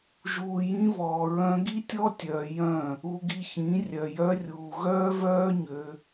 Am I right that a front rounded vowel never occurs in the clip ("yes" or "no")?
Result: no